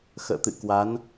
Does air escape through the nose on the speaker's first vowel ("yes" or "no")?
no